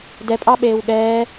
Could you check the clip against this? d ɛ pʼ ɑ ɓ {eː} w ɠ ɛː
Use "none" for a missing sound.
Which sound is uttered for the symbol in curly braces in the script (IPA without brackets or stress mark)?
eː